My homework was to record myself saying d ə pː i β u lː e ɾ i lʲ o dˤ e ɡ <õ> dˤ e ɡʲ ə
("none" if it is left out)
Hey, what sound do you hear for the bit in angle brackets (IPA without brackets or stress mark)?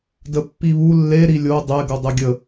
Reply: o